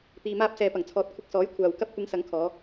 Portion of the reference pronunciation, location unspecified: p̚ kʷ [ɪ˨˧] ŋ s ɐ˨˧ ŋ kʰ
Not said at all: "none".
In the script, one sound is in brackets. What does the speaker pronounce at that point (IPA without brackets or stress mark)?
ɪ˨˧